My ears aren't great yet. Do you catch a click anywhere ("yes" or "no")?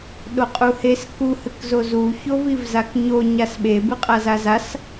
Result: no